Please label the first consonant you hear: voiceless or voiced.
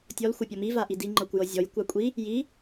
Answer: voiceless